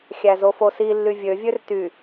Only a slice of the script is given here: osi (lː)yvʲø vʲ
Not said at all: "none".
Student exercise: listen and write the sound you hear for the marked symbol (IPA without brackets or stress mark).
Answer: lː